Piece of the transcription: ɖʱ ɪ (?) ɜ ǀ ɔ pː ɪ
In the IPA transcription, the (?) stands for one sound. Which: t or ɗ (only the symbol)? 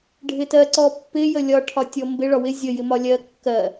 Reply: t